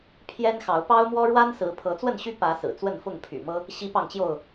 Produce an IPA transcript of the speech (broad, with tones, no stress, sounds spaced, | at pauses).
pʰ j ɛ˦ n x ɑ˨˦ ʊ̯ p ɑ˦ ʊ̯ m w ɔ˦ ɻ w a˦ n s ɹ̩˨˦ pʰ ɤ˨˦ t͡s w ə˥˨ n ɕ y˦ p ä˨˦ s ɹ̩˨˩ t͡s w ə˥˨ n f ʊ˥˨ ŋ pʰ y̰˨˩ m ɤ˦ | ɕ i˦ p ɑ˥˨ ŋ t͡ɕ j o˥˨ ʊ̯